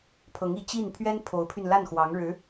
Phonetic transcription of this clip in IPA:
pʰ ɤ˧˥ ŋ i˧˥ t͡ɕ i˥˩ n pʰ ɥ ɛ˥ n pʰ o˧˥ ʊ̯ pʰ y˧ n l a˥˩ n x w ɑ˧˥ ŋ ɻ ɻ̩˧˥

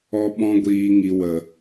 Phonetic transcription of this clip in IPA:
ɔ˧ ɓ ɔ̃˧ ɡʷ iː˨ ŋ i˨ w ə˨

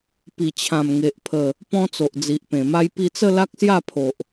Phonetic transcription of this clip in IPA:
p i˨˩ t͡ɕʰ ã˨˩ m ŋ e˨ ʔ pʰ ə˨˩ | p ɔ̃˧ t͡s o˨ ʔ d͡z i˨ ʔ p ẽ˨˩ m a˧ j p i˧ t͡s ə˥˧ l a˦ k̚ s j a˥˧ pʰ o˨ ʔ

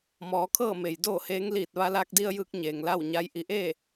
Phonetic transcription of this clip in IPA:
m ɔː˩˧ kʰ ɤː˥˨ m e˩ j d oː˥˨ h eː˧˥ ŋ l iː˧˩ t̚ ʋ a˧ l aː˧ k̚ d i˧ ə̯ j ɯː˧˥ k̚ ɲ eː˩ ŋ l a˥˨ w ɲ a˧˥ j ʔ i˩˧ ʔ e˥˨

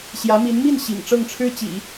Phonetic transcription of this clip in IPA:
ɕ j ä˧˥ m i˧˥ n m i˥˩ n ɕ ḭ˨˩ ŋ ʈ͡ʂ ɤ˥˩ ŋ ʈ͡ʂʰ ɻ̩˥ t͡ɕ ḭ˨˩˦

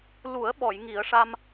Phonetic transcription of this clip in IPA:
l u˨˩˦ ə̯ ɓ ɔ˨˩˨ j ŋ i˨˩˦ ə̯ ʂ a˧ m

